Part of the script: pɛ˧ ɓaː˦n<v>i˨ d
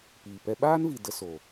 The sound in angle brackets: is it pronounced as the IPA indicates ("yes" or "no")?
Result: yes